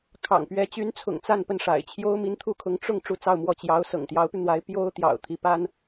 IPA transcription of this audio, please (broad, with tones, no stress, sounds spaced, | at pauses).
kʰ ɑ̰˨˩ ŋ p ɥ ɛ˧˥ t͡ɕ y˧˥ n t͡sʰ ʊ̰˨˩ ŋ t͡s a˥˧ n p ə˥˩ n ʂ a̰˨˩ ɪ̯ t͡ɕʰ j o˥ ʊ̯ m i˧˥ n t̪ʰ u˥ kʰ ʊ˧˥ ŋ ʈ͡ʂ ʊ˥˧ ŋ ʈ͡ʂ u˥˧ t͡s ɑ˥˧ ʊ̯ m w ɔ˥˩ t͡ɕ j ɑ˧˥ ʊ̯ s ɤ̰˨˩ ŋ t̪ j ɑ˧˥ ʊ̯ p y˧ n̪ w a˧˥ ɪ̯ p j o˥ ʊ̯ t̪ j ɑ̰˨˩ ʊ̯ t̪ʰ i˧˥ p a˥ n